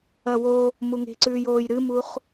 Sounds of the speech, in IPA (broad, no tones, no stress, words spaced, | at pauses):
ɐwo | muŋe̤ǀʉːjoːj ɾɨmuχ